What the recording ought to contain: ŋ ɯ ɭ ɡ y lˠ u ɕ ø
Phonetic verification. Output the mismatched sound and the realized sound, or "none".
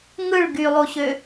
none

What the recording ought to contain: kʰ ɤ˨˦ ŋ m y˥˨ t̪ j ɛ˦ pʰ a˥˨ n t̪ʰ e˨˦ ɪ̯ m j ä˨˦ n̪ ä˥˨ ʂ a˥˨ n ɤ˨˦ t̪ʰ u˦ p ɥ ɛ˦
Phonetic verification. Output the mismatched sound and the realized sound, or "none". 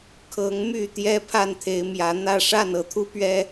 none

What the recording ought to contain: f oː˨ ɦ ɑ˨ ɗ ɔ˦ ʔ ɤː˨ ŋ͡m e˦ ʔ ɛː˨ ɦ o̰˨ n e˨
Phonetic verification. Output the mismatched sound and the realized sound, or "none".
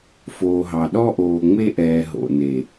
ɤː˨ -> oː˨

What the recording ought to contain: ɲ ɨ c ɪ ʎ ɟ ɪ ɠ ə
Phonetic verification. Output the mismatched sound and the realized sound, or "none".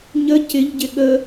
ɨ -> ə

